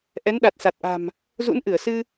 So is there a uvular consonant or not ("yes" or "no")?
no